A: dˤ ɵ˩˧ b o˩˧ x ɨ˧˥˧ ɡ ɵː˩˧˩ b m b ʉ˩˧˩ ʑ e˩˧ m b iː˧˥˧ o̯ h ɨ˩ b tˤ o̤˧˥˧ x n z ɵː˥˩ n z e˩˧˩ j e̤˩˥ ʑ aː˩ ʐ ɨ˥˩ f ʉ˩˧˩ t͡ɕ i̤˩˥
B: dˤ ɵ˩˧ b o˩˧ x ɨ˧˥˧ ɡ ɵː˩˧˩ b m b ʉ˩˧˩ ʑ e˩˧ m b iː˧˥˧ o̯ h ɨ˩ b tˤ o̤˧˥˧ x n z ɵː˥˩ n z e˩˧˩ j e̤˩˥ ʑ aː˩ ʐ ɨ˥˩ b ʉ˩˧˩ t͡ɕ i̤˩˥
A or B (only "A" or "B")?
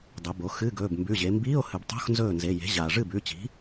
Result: B